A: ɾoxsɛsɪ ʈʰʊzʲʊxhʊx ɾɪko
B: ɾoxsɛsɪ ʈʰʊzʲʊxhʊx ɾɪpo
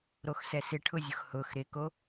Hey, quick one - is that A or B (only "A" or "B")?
A